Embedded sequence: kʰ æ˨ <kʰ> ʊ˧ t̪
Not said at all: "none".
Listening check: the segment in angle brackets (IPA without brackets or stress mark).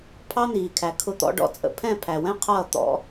kʰ